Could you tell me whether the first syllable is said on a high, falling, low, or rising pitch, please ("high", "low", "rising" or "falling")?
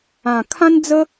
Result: low